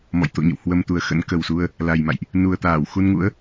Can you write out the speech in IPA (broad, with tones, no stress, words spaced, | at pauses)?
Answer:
mɔ̰˧˨jt̪o̰˧˨ɲə̰˧˨whwə˧m t̪u˨˩ə̯xə̰˧˥nkə˨˩wsu˧ə̯ | la˨˩jma̰˧˨jʔ | nu˨˩ə̯t̪aː˧˩wxu˧nŋṵ˧˥ə̯